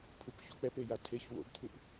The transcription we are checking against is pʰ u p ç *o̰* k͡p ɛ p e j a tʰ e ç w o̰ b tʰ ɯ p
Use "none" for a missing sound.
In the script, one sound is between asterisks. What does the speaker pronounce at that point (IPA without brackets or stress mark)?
o̰